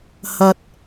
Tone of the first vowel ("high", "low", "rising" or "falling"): low